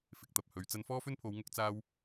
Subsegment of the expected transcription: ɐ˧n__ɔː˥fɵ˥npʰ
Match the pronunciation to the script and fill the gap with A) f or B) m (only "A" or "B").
A